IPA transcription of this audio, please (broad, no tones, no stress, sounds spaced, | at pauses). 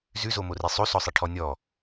z ʉ z o m o r i sˤ o s ɔ sˤ i ʈʰ ɔ nʲ ɔ